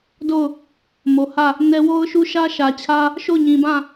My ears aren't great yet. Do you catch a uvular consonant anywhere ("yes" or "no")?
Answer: no